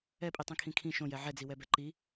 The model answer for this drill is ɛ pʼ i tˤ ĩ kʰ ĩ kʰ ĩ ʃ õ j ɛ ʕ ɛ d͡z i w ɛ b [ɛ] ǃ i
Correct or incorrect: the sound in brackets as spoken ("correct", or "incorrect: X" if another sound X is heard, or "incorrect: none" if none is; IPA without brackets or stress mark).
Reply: correct